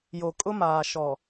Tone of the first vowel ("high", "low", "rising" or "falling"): low